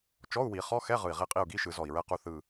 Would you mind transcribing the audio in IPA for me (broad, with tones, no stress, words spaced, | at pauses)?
t͡ʃɔ˧˥˧u̯wi˨˩˦χɔ˧˥˧xɛ˧˥˧ ʁɯ˨˩i̯ʁi˦˨qʼi˦˨u̯ɡi˧˥˧ ʃɯ˨˩˦zɔ˨˩i̯ɹɛ˦˨qu˦˨ θɯ˨˩